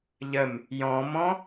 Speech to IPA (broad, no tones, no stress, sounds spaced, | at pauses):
ʎ ə m | j ɔ̃ m ɔ̃